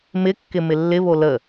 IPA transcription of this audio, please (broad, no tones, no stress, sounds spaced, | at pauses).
m ɪ kː ɪ m ɪ lː ɪ β o l ə